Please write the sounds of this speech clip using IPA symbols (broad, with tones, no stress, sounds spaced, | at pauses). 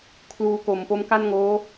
kʰ l uː˧ k o˩˦ m p o˦˥ m k a˥˩ n ŋ oː˦˥